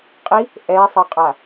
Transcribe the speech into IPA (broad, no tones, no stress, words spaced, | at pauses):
qʼi | ʔɛsˤʌqʼa